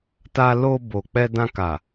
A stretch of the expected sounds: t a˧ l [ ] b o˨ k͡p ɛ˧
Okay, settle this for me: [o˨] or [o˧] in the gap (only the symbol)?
o˧